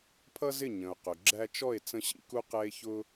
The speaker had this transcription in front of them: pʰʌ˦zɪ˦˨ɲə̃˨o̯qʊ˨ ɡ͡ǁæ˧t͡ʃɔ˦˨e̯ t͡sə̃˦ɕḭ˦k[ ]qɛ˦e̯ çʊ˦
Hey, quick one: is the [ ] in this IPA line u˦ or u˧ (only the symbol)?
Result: u˦